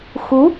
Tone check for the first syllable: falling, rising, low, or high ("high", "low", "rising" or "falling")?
rising